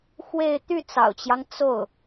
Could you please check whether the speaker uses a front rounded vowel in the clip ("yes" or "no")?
yes